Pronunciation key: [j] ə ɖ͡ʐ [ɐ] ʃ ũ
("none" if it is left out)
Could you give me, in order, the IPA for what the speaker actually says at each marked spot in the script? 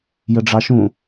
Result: j, ɑ

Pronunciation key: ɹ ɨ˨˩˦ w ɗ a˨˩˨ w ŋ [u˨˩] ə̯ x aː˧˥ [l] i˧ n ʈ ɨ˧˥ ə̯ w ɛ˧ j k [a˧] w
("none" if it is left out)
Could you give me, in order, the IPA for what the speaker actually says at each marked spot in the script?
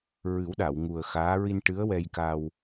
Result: u˨˩, ɹ, a˧

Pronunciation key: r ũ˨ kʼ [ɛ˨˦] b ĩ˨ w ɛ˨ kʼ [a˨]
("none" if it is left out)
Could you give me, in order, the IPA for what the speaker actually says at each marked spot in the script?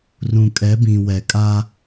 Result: ɛ˨˦, a˦

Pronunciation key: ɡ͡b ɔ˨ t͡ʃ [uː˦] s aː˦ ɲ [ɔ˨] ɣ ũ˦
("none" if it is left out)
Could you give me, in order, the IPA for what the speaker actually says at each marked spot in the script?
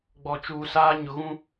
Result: uː˨, ʊ˨

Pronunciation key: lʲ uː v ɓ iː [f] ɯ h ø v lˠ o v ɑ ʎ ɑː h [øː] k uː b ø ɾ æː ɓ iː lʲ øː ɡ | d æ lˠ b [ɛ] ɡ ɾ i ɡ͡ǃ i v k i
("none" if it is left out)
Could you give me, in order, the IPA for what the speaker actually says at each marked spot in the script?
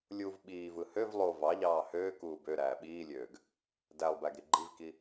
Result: v, øː, æ

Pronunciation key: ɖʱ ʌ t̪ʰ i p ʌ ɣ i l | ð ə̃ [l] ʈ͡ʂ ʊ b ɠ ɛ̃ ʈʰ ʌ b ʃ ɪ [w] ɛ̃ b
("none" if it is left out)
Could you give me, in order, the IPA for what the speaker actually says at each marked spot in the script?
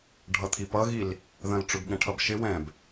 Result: l, w

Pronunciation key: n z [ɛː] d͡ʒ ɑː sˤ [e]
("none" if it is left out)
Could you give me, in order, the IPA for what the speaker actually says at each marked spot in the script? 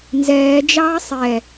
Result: ɛː, ɛ

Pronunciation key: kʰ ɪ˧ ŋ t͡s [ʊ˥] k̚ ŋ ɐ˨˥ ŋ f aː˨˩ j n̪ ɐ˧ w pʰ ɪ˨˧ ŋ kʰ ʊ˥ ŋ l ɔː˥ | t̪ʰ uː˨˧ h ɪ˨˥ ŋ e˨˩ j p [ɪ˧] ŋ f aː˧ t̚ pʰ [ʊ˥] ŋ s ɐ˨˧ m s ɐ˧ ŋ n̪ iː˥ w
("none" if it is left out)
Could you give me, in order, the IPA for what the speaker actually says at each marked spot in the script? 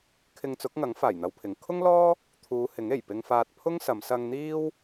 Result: ʊ˨˥, ɪ˧, ʊ˥

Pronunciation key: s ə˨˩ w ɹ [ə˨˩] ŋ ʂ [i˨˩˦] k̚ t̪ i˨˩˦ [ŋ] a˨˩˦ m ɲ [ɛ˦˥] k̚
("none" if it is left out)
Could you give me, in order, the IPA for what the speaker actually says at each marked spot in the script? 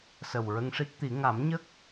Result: ə˧, i˦˥, ŋ, ə˦˥

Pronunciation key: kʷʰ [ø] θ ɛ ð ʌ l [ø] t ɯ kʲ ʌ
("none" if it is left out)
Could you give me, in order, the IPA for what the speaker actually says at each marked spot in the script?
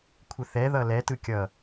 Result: ə, ɛ

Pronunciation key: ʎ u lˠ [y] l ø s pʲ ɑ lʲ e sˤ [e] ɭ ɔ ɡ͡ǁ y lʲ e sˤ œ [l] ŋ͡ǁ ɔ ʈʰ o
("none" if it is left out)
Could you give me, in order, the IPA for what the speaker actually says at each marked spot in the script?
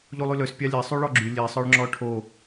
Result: y, y, ɭ

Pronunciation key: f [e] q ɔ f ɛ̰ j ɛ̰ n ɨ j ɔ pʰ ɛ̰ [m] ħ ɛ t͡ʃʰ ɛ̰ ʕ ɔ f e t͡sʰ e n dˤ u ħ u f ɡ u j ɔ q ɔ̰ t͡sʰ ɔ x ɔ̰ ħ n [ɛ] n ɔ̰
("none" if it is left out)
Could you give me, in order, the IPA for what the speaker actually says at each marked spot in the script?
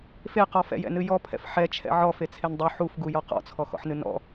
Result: e, f, ɨ

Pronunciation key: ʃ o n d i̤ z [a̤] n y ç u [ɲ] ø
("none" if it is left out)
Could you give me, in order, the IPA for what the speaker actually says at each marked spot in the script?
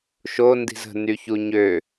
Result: ə̤, ɲ

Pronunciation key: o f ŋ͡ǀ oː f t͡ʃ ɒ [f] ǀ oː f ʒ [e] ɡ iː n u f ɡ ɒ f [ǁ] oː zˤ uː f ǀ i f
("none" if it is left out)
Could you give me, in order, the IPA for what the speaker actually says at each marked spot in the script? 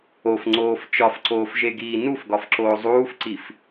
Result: f, e, ǁ

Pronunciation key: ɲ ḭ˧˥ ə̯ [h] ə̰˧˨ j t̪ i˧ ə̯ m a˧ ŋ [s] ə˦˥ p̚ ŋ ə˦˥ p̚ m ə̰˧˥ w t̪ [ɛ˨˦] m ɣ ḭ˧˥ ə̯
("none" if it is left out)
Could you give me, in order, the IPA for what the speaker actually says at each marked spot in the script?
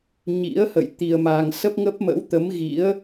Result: h, s, ə˨˦

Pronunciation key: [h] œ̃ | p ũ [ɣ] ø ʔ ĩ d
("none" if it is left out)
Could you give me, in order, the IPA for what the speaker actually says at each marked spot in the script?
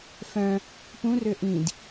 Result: f, r

